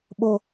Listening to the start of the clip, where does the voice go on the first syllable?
high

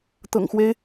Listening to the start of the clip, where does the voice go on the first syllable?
low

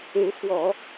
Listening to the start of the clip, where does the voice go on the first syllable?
rising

